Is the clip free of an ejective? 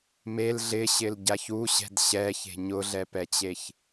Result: yes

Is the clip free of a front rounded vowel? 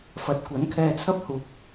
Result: yes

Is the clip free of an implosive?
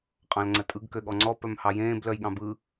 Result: no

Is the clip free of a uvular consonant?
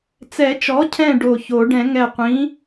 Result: no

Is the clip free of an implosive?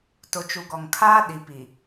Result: no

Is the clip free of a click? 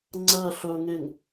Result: no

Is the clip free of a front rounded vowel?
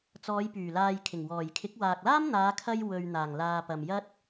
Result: no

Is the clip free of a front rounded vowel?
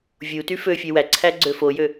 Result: no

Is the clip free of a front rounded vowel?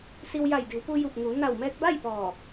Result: yes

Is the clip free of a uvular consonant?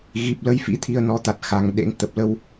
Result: yes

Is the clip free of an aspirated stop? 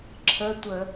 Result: no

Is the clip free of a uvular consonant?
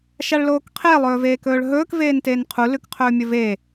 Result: no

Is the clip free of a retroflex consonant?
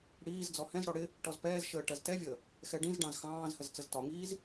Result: no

